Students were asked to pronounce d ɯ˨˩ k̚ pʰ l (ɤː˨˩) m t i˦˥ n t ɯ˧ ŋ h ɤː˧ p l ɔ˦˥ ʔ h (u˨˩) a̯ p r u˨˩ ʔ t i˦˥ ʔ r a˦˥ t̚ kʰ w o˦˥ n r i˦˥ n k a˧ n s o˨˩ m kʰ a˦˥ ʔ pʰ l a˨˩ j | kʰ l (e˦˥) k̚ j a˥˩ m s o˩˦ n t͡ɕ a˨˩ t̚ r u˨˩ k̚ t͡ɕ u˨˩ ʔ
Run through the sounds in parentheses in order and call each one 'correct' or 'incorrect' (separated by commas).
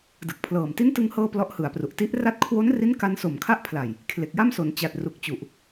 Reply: correct, incorrect, incorrect